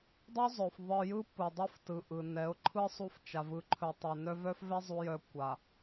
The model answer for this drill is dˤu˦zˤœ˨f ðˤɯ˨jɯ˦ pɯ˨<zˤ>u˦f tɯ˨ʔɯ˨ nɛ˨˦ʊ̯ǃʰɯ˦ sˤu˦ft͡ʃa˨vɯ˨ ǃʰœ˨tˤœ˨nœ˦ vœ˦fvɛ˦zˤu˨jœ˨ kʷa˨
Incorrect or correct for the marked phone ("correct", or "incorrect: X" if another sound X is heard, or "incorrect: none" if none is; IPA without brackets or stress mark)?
incorrect: dˤ